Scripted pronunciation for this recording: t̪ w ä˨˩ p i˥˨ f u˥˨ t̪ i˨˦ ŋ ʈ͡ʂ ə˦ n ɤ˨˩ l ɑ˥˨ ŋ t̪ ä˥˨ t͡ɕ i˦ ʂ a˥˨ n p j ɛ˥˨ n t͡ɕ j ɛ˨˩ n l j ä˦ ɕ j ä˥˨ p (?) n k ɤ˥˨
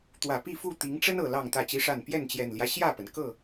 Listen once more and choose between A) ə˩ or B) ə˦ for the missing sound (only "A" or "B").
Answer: A